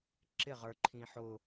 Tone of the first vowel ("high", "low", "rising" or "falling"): falling